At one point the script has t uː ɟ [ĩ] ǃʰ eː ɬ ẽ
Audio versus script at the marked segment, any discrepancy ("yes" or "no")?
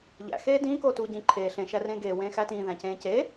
no